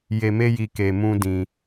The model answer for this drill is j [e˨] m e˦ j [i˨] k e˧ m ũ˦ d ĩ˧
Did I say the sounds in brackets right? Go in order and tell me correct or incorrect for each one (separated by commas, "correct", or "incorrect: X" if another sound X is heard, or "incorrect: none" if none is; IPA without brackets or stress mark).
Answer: incorrect: e˧, incorrect: i˧